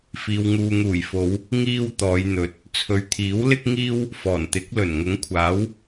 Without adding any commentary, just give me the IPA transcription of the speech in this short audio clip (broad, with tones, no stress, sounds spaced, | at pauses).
f iː˨ w ŋ uː˨ ŋ uː˨˩ j f o˨˧ w | ŋ iː˧ w t̪ ɔː˨˧ j n̪ ɵ˨ t̚ | t͡sʰ ɵ˨ ɥ t̪ʰ iː˨˥ w l ɪ˥ k̚ ŋ iː˥ w | f ɔː˨˩ n t̪ ɪ˨˥ k̚ l ɵ˨˩ n ŋ ʊ˨˥ ŋ kʷʰ aː˨˥ w